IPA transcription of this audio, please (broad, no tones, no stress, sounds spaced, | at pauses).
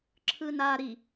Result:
ǁʰ ɯ n a ɾ i